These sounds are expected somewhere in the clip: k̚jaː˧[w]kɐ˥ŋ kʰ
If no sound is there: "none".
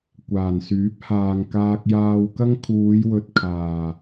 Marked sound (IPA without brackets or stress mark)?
w